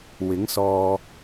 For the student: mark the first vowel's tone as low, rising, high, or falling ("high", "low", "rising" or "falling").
rising